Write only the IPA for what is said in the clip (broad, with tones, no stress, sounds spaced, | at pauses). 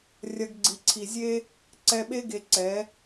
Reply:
rʲ ɐ˧ ɡ ɡ͡ǀ i˨ ǀʰ i˨ zʲ e˦ | ǀ ɛ˧ ɓ e˦ ɡ e˧ ǀ ɛ˨˦